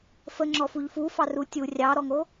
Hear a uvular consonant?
no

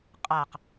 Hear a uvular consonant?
yes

